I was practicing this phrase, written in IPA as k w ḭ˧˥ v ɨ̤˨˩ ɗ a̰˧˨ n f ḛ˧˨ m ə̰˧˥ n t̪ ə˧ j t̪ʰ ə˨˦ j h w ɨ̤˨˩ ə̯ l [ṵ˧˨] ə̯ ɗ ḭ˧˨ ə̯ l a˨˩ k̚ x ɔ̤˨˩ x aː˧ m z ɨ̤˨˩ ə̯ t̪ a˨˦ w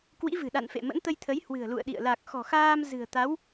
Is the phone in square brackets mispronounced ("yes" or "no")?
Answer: no